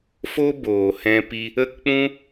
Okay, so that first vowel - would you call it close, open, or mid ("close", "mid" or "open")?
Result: mid